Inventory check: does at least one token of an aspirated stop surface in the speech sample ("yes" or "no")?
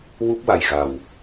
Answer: no